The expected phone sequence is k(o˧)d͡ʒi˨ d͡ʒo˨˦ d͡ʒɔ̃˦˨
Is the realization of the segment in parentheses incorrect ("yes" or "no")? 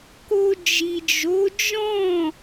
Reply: no